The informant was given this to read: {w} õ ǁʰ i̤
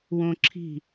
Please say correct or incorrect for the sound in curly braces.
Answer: correct